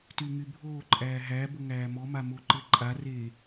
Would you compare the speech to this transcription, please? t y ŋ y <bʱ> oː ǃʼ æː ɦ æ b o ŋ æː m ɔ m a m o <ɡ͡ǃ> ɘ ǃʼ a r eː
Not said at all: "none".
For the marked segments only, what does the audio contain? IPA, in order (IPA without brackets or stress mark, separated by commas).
bʱ, ǃ